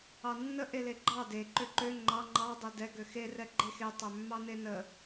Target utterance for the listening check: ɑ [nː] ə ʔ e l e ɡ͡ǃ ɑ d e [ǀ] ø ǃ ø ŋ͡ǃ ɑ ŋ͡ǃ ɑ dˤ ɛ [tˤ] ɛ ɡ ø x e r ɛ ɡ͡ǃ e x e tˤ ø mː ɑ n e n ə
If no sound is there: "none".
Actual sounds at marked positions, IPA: nː, ǃ, d

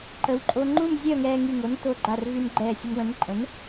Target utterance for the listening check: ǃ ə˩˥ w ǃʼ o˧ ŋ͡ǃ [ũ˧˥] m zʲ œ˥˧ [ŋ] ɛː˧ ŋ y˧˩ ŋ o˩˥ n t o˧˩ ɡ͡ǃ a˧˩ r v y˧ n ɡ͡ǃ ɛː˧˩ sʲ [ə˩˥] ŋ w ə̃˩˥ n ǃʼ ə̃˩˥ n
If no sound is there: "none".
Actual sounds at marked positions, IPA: ũ˥˧, ŋ, ə˧

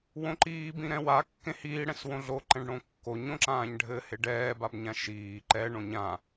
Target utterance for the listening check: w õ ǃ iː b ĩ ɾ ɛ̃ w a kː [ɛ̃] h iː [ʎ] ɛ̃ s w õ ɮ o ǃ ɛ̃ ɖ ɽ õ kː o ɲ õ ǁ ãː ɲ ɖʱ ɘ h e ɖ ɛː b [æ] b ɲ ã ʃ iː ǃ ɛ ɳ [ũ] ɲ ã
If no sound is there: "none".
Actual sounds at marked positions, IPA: ẽ, ɽ, a, õ

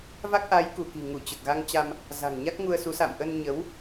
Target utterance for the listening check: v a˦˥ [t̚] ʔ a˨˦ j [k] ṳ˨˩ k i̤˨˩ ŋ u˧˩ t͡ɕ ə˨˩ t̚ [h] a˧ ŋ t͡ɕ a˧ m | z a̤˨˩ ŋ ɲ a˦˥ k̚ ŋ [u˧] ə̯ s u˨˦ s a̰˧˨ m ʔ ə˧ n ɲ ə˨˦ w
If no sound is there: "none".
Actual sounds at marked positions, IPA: k̚, k, ɣ, u˧

